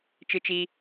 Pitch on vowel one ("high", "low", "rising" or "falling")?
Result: low